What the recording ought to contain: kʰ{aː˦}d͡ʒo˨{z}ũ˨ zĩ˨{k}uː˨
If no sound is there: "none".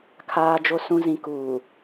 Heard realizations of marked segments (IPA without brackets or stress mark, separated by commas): aː˨, s, k